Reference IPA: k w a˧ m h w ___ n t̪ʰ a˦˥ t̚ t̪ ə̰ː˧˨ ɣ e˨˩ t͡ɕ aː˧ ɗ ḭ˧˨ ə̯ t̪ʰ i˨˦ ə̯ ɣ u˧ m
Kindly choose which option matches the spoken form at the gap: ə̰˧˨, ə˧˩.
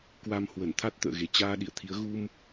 ə˧˩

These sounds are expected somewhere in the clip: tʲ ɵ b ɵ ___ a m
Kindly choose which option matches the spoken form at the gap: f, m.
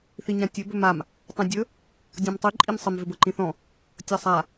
m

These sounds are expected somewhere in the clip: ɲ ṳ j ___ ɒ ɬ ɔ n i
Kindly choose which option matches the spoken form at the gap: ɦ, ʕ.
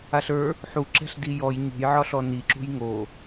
ʕ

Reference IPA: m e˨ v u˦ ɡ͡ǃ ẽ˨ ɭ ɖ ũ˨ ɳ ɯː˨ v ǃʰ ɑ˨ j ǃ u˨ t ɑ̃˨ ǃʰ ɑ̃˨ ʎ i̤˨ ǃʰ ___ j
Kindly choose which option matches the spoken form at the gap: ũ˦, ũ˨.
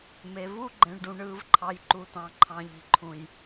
ũ˨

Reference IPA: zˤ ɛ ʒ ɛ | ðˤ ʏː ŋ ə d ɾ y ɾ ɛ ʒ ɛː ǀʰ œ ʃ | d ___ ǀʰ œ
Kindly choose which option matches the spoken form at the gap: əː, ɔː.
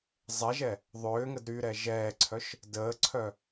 əː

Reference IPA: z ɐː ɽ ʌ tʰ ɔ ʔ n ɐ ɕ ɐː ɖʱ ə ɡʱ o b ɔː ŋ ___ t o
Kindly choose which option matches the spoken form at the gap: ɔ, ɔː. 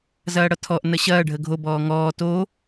ɔː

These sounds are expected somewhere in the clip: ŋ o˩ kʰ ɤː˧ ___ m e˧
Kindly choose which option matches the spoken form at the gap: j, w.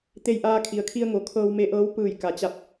w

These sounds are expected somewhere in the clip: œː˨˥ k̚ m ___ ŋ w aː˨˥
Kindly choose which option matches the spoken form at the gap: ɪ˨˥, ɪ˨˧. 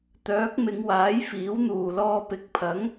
ɪ˨˧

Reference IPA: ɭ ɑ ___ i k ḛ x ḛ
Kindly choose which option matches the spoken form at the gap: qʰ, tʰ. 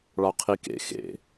qʰ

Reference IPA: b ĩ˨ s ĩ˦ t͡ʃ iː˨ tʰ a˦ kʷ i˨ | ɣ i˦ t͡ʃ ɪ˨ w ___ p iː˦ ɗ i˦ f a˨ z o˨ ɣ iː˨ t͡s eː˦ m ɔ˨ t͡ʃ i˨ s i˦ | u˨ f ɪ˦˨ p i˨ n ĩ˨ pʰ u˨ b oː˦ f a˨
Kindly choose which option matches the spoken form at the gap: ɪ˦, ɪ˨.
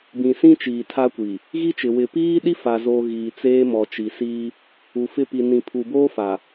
ɪ˨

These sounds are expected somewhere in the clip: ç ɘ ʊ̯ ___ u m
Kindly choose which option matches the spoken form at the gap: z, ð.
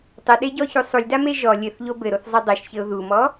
ð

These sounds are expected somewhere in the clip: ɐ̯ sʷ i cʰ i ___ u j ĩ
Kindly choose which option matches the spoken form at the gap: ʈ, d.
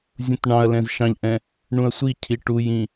ʈ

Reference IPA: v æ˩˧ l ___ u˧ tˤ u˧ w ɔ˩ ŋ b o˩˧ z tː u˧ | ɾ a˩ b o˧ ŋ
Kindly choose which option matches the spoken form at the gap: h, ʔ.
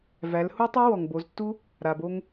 h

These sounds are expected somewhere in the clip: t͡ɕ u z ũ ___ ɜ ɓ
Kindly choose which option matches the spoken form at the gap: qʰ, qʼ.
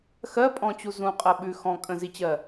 qʼ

